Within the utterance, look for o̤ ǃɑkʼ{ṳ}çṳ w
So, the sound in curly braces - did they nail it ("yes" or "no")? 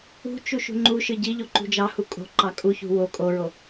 no